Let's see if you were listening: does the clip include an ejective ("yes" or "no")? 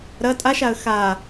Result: yes